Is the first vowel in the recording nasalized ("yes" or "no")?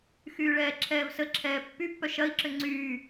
no